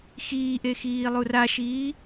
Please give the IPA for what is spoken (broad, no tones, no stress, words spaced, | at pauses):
xiːʔe xiːlˠuraʃiː